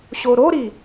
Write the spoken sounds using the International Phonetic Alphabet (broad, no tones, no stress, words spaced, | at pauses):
ɕoɾoɾi